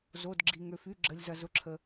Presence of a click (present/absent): present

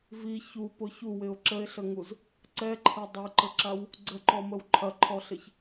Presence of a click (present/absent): present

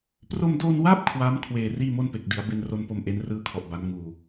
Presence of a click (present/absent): absent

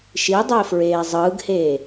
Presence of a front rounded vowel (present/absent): absent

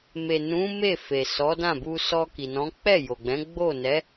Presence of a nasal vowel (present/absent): present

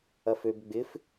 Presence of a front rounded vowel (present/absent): present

